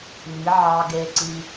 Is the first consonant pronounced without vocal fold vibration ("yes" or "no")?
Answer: no